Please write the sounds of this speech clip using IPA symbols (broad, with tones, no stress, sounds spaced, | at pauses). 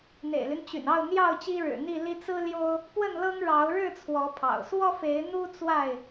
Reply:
n̪ ḛ˨˩ ɪ̯ l y˦ n t͡ɕ y̰˨˩ n ɑ˥˨ ʊ̯ n̪ j ɑ˥˨ ʊ̯ t͡ɕ i˦ ɻ ɻ̩˨˩ n̪ i˥˨ l i˦ t͡s ɹ̩˦ l j o˦ ʊ̯ | p w ə˥˨ n l ɤ˦ ŋ ɻ ɑ˨˦ ʊ̯ ɻ ɻ̩˥˨ t͡sʰ w ɔ˨˦ pʰ ɑ̰˨˩ ʊ̯ s w ɔ˦ f e˨˦ ɪ̯ n̪ u˦ t͡s w a˥˨ ɪ̯